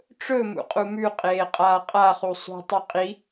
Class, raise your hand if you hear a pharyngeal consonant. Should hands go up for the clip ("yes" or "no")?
no